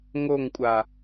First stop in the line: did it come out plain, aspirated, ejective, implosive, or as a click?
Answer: ejective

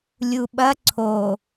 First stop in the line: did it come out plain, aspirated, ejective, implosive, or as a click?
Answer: implosive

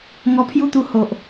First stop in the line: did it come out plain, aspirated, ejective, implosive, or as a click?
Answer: aspirated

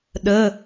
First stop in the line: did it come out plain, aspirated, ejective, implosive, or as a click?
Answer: implosive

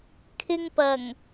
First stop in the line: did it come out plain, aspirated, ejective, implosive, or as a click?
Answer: aspirated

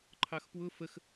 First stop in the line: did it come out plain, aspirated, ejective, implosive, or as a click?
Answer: click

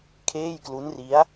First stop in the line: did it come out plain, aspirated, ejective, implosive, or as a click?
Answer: aspirated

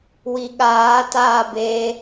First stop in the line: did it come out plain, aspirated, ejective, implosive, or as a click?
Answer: implosive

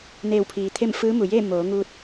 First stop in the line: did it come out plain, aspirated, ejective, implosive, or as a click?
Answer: aspirated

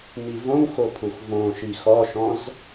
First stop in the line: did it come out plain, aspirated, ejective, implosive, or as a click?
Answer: aspirated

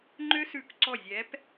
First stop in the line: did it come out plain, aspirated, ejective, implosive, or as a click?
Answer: click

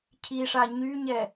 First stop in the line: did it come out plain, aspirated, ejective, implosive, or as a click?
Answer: aspirated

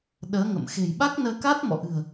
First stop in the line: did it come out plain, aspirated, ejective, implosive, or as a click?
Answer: implosive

